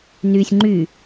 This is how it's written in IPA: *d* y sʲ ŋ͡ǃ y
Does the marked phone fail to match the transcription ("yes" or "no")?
yes